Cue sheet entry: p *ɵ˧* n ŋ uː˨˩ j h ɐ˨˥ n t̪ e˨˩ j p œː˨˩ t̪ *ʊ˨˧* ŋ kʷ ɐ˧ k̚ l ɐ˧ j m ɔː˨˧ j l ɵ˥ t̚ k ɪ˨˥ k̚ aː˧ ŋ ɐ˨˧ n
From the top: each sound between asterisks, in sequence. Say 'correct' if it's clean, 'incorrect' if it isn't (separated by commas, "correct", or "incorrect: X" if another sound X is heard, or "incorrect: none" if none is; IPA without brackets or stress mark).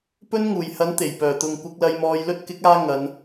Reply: incorrect: ɵ˥, incorrect: ʊ˨